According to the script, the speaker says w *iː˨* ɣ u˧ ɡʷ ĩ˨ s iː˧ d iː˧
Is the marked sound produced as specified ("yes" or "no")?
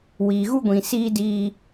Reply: yes